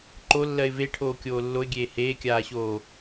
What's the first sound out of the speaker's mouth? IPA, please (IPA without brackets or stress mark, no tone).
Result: ǃ